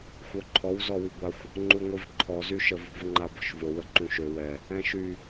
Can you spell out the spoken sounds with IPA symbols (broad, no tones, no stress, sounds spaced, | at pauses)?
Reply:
xʷ œ ǃʰ ɔ w z ɔ w i ɡʷ a xʷ | ŋ͡ǃ u ŋʷ i v ǃʰ ɔ z y ʃ ə v ṳ v ŋ͡ǃ a b ɔ̤ ʃ v o w ə ǃ ũ ʃ ø w ɛ | ɛ̃ ʃ y